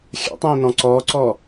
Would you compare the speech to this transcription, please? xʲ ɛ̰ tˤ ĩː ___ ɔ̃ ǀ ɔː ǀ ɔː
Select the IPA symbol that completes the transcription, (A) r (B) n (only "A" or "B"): B